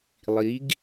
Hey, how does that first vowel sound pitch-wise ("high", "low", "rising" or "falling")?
rising